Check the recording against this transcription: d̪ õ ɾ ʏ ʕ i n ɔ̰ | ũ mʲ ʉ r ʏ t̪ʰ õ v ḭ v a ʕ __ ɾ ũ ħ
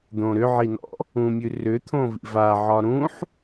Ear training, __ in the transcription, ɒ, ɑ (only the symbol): ɒ